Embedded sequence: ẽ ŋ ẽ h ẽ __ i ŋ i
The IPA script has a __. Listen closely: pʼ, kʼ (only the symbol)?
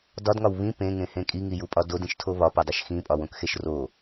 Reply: kʼ